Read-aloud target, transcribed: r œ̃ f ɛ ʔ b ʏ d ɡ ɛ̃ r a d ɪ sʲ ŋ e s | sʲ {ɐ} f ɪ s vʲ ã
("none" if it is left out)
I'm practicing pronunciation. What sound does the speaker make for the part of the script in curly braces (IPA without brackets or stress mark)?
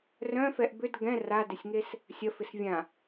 ɐ